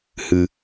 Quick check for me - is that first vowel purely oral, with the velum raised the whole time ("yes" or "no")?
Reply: yes